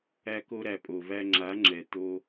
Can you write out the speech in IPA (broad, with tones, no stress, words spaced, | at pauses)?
æ˧ko˧ɾæ˨ pʼo˨væ˧ ŋ͡ǁa˨˦ŋ͡ǁɛ˨ t̪o˧